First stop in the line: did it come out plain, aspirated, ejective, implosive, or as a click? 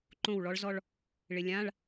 click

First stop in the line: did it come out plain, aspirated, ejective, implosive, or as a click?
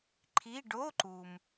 click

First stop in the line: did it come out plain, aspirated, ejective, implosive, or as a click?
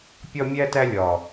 plain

